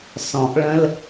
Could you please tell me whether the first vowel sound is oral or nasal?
nasal